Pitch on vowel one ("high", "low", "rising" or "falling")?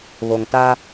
low